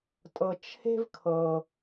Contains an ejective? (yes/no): yes